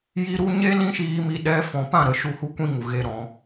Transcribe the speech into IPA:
j i˧ ɾ u˧ ɲ e˦ l ĩ˦ ʃ iː˧ m i˧ ɗ ɛ˧ f ɔ̃˨ p ã˦˨ ɾ ə˨ ʃ u˦˨ h u˦ kʷ ĩ˦ ŋ u˨ ɣ e˧ ɾ ɔ̃˨˦

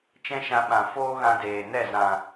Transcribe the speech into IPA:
t͡ʃ ɛ̃˦ ʃ ã˧ ɓ ã˨ f oː˦ ɣ ã˧ d eː˨ n ɛ˦˨ z ã˨

